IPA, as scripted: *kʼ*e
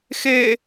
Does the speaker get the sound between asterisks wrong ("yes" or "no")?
yes